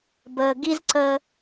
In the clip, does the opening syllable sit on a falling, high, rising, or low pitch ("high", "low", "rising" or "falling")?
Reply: low